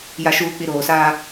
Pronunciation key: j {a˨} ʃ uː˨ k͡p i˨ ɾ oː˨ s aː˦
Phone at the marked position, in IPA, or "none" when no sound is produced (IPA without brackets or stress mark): a˨